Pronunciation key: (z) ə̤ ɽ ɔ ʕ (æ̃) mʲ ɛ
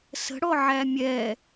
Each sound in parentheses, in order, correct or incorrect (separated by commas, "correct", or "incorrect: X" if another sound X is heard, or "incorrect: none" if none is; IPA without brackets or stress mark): incorrect: s, incorrect: æ